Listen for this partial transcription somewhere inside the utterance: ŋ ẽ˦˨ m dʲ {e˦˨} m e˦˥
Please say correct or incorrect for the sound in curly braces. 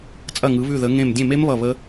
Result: incorrect